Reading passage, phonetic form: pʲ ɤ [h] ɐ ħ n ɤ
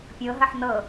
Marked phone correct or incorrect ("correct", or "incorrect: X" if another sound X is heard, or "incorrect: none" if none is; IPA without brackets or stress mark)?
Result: incorrect: ɦ